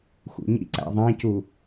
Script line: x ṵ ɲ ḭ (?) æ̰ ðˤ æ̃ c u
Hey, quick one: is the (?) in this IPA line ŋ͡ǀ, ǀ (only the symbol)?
ǀ